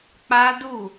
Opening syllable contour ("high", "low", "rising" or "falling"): high